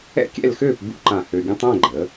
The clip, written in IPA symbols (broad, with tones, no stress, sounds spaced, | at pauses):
ɛ̰˥˧ kʲ ɛ̰˥˧ l x øː˥˧ p b ṵ˥ ǃ ã˧˩ h ø˧ ɡʲ ə̃˥ tˤ ɛ̃˥˧ ɡ͡ǃ ə˩˧